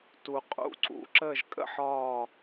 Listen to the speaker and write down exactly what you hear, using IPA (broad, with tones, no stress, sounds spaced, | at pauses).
t u˩ qʼ ṵ˨˦ ǀ ṵ˨˦ ǁ əː˧˩ ʒ kʼ ə̰˥˧ ħ ɒː˧˩